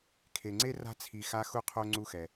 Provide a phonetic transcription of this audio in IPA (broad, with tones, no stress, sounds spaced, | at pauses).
kʰ e˩ ŋ͡ǀ e˥ r a̤˦ t͡sʰ i˨ x a˦ x u˦ qʰ o˦ ŋ͡ǀ u˥ x ɛ˩